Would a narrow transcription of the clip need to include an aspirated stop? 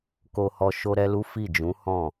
no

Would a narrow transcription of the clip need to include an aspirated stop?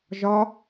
no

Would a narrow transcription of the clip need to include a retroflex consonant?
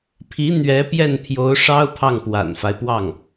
yes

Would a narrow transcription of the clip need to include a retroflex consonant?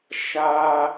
no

